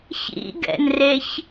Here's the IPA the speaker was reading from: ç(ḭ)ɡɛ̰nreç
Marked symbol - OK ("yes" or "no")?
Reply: yes